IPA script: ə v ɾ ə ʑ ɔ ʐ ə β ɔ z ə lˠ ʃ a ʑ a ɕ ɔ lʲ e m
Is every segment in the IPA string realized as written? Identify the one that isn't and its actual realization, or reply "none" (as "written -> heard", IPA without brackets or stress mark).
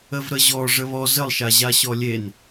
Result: m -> n